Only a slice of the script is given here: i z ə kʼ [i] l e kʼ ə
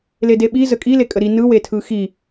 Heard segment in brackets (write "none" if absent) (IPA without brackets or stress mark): i